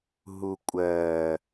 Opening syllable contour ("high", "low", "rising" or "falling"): low